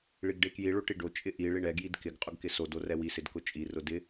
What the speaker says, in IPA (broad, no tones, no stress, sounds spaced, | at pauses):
ɭ i ɡ ɖ e k j i ɭ o ʈ i ɖ o t͡ʃʼ ɪ ʔ i ɭ i ɳ ɛ ɡ j i d k ɪ ɡ qʼ ʊ ɡ k ɪ s o d o r ɛ w i s ɪ d k ʊ t͡ʃʼ i r ʊ d ɪ